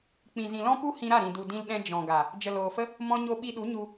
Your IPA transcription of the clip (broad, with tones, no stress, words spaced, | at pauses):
k͡pĩ˨zĩ˨lɔ̃˦pu˦ hĩ˧ɾa˦˨ɾĩ˨ du˨dĩ˧lɗɛ̃˧ d͡ʒɔ̃˨ɡa˨ | d͡ʒə˨loː˨fə˦ | mɔ̃˧ɲo˧ɓi˧ɗu˨˦ ɲu˧